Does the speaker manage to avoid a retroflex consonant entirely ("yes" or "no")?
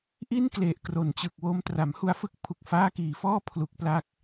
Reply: yes